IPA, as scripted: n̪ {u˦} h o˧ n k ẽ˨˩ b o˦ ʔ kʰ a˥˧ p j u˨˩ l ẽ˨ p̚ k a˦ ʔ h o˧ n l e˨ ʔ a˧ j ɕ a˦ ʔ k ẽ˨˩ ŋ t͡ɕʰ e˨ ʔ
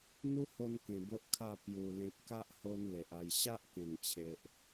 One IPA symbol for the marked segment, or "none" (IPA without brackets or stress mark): u˦